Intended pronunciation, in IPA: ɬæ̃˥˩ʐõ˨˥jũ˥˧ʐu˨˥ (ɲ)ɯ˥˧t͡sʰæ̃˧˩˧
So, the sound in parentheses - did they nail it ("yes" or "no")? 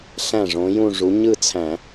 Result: yes